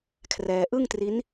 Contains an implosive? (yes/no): no